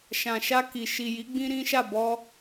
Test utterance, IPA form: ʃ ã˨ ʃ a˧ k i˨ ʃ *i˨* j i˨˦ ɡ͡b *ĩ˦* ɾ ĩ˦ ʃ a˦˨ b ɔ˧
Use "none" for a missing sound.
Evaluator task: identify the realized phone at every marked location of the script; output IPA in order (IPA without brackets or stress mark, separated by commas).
i˨, ĩ˦